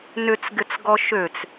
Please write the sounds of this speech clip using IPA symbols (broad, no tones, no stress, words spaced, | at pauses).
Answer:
nʏt͡sɡɪt͡sɡɔ ʃøt͡s